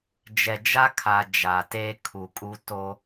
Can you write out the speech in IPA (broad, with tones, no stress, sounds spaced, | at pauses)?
d͡ʒ ɛ˨ d͡ʒ a˦ kʰ a˨ d͡ʒ a˨ t eː˦ kʰ u˨ kʼ u˦ t o˦